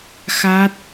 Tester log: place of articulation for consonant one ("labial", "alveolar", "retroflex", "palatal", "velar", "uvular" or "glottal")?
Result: velar